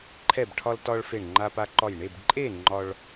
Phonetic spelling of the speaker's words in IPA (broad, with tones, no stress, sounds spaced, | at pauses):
ǃʰ ɛ˧˩ b ʈʰ ɒ˧ l t ɒ˧ ɭ f e˧˩ ɳ ŋ͡ǃ a˧ p a˧ ǃ ɒ˧˩ j ɳ e˥˨ b ǃʼ e˥˨ ŋ͡ǃ ɒ˧ ɭ